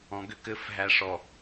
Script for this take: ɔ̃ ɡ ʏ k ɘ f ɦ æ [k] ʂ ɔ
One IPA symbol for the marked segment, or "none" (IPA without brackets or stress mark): none